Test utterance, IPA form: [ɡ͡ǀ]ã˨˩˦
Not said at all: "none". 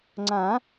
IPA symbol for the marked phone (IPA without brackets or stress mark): ŋ͡ǀ